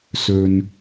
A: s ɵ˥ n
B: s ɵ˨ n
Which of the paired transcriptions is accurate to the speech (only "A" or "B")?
B